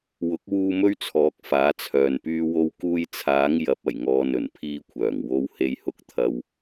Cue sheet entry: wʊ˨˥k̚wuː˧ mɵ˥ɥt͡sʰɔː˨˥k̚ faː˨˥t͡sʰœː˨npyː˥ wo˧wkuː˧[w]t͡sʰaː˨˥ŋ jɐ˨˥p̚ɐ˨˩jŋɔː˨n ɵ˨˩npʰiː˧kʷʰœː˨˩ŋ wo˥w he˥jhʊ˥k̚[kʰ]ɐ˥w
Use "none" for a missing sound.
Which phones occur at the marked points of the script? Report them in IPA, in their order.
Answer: j, t̪ʰ

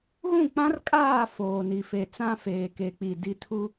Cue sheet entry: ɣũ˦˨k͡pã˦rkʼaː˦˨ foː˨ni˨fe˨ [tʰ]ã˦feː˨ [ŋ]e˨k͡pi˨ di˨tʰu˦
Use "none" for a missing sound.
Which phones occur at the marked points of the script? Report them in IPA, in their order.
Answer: t͡s, k

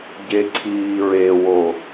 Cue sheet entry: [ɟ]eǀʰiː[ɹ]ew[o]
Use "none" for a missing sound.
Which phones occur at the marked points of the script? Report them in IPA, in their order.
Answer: ɟ, ɹ, o

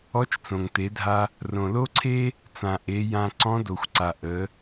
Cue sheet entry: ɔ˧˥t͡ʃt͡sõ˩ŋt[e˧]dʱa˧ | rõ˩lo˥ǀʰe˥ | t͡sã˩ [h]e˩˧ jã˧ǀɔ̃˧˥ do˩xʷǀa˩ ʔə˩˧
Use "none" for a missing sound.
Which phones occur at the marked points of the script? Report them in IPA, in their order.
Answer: e˩˧, ʔ

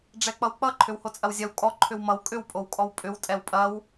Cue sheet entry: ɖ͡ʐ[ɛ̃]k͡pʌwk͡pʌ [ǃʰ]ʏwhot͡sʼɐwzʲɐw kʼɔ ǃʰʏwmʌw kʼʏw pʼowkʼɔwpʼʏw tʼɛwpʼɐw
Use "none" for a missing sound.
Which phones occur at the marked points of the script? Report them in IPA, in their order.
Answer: ɛ, ǃʰ

